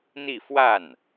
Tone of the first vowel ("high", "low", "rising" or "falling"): falling